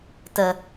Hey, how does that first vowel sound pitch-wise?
low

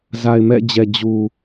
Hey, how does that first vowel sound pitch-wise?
low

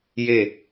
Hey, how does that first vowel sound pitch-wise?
falling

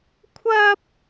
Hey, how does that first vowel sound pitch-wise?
high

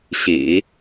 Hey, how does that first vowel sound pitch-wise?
low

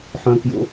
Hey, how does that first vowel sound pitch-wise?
high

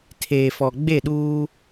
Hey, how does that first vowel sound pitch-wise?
low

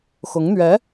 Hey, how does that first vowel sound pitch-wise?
rising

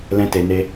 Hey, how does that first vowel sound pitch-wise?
high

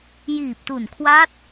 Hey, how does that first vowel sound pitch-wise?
low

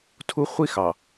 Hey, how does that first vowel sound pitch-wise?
high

